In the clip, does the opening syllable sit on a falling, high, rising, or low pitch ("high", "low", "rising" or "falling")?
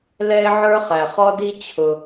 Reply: high